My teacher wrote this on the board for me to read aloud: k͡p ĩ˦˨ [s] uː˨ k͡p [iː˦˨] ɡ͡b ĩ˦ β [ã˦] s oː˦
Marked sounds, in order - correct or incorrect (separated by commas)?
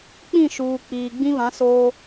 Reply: incorrect, incorrect, incorrect